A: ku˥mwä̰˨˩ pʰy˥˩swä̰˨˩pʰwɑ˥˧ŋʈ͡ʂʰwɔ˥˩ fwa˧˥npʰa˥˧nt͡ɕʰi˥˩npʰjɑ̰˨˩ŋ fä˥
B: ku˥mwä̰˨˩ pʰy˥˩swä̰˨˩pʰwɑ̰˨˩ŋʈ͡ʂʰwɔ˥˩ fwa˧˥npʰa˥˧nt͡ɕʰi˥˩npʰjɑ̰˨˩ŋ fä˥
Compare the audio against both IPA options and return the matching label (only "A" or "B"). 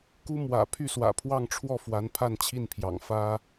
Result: A